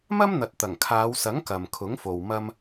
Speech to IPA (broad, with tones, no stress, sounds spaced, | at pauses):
m ɐ˥ m n̪ ɐ˨ t̚ t̪ ɐ˨˩ ŋ kʰ aː˨˧ w s ɐ˨˥ ŋ k ɐ˨ m kʰ ʊ˨˥ ŋ f o˨ w m ɐ˧ m